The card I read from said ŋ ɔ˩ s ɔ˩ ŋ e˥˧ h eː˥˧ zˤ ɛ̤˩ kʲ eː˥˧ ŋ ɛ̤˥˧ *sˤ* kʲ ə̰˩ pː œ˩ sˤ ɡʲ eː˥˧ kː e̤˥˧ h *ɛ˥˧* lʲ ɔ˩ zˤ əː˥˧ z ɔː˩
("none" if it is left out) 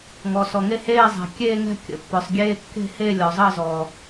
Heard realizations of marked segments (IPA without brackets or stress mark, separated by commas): none, e˥˧